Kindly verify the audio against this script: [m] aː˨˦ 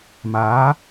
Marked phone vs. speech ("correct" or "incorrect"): correct